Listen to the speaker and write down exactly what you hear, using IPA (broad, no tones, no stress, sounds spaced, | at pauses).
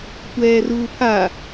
tʷ ɛː r uː pʰ a